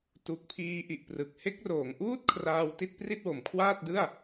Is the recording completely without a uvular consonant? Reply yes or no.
yes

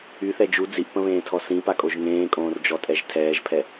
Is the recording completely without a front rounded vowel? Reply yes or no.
no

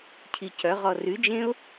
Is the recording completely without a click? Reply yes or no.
yes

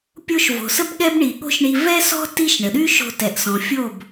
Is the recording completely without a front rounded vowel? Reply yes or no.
no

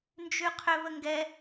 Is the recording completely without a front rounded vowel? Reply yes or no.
no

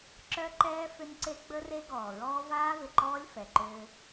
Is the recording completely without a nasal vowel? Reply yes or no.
yes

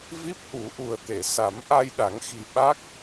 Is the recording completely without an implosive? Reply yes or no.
no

